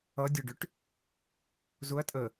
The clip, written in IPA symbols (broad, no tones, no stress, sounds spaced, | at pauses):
ʌ dʲ ʊ ɖ ʏ ʈ | z ʊ ɐ̯ tʼ ə